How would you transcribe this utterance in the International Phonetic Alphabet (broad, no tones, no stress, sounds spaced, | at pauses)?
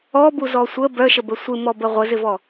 ɔ b u z ɔ sʷ ə b œ ʃ ə b ə sʷ ɪ m ɔ b ə ʁʷ ə z ɪ v ɔ